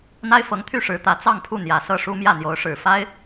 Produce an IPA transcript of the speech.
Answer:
n̪ a˥ ɪ̯ f ɤ˧˥ ŋ t̪ʰ y˥˩ ʂ ɻ̩˧˥ t̪ ä˧˥ t͡s ɑ˥˧ ŋ pʰ u˥˩ n̪ j ä˨˩ s ɤ˥˩ ʂ u˥ m j ä˥˩ n̪ j o˧˥ ʊ̯ ʂ ɻ̩˨˩ f a˥ ɪ̯

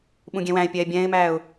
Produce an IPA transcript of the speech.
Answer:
ɓ ũ ɡʲ ɛ̃ w æ̃ ɪ̯ pʲ ɛː bʲ ɛ̃ː ɪ̯ m æː ʊ̯

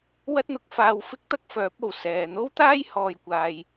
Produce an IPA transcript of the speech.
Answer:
w ɐ˥ t̚ n̪ ʊ˨˥ k̚ f aː˧ w f ɪ˥ k̚ t̪ ɐ˥ k̚ f œː˨˥ p̚ o˨˩ w s ɛː˨ n̪ o˥ w t̪ aː˥ j h ɔː˨ j kʷ aː˨ j

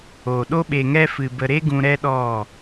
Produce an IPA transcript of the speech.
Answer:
oː˨ ɗ o˦ ɓ e˧ ŋ ɛ˦ f ɨ˧ b ə˧ ɾ e˦ ɡ ũ˧ ɾ ɛ˦ ɗ ɔ˦˨

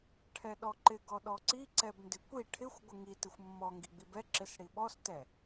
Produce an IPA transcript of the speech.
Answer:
ʈʰ ɛ ɗ ɔ ǃ ɪ ɡ ɔ ɗ ɔ ǀ i ǀ ɛ b n d ɪ kʷ i ʈʰ ɪ xʷ ɡʷ ɪ ŋ i t ɪ xʷ mː ɔ ŋ ɡ i ɡ͡b i b ɛ ǁ ɪ s ɽ i ɓ ɔ s t ɛ

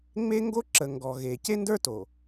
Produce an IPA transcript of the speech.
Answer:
ŋ͡m e˦ ŋ ɡ o˦ ǁ ə˨ ŋ ɡ ɔ˨ ɣ e˨ c e˦ n d ə˞˦ t o˨

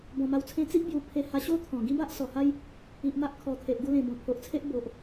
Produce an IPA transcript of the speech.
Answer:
b ɔ̃˨˩ m a˧ w t͡sʰ ẽ˦ t͡s i˦ ʔ b j u˨˩ pʰ e˧ h a˧ ɕ o˦ t̪ʰ ɔ̃˨˩ ɡ ĩ˦ b a˦ ʔ s ɔ˨˩ h a˦ j | i˨ ʔ m a˦ ʔ kʰ ɔ˨˩ t̪ʰ e˨ ʔ ɡ u˧ l ẽ˨˩ b ɔ̃˨˩ pʰ o˨ ʔ t͡sʰ e˦ ʔ b o˨ ʔ

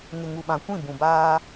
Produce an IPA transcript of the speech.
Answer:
ŋ ɪ˨ ŋ u˨ ɓ ã˨ kʷ ĩ˦˨ b ũ˨ b aː˦

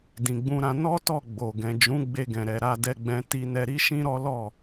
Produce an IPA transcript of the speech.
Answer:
d ĩ˨ ɡ͡b ũ˧ ɾ ã˧ n ɔ˦ t ɔ˦˨ ɡ͡b o˨ ɡ ɛ̃˨ d͡ʒ ũ˨˦ ɡ͡b e˧ ɡ ɛ̃˨ ɾ ɛ˨ ɾ a˧ d ɛ˧ ɡ͡b ɛ̃˧ t i˧ n ɛ˧ ɾ i˦ ʃ ĩ˦ ɾ ɔ˦ l ɔ˦˨

